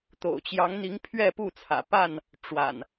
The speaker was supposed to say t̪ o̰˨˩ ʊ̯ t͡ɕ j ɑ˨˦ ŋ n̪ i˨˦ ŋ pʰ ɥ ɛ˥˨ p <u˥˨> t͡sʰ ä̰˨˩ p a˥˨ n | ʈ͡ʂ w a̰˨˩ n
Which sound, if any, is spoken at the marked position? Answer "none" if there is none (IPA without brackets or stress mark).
u˥˨